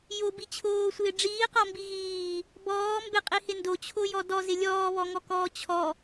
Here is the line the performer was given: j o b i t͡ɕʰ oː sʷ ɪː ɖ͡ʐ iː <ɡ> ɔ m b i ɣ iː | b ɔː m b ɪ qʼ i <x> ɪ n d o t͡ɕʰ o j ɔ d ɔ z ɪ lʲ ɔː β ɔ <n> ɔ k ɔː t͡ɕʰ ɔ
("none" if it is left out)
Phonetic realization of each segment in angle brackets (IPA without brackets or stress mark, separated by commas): q, h, ŋ